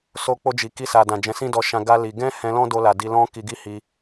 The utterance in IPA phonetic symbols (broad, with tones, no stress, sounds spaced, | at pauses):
s o˧ k͡p o˧ d͡ʒ i˨ k i˧ s a˨ d ã˨ d͡ʒ ɛ̃˨˦ s ĩ˦ d ɔ˧ ʃ ã˧ ɡ a˦ l i˧ ɡ ɛ̃˦ h ɛ̃˧ l ɔ̃˦ d o˧ l a˨ d i˧ l ɔ̃˦ k i˧ ɡ i˦ h i˧